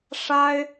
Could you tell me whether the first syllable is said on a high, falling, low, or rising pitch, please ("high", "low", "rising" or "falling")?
high